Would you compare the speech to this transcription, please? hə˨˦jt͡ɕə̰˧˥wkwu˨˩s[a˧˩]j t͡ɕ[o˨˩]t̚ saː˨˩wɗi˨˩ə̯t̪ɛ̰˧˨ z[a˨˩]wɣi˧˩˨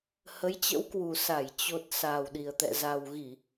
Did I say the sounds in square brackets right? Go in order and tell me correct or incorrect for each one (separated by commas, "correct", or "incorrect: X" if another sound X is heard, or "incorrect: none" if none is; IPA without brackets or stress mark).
correct, correct, correct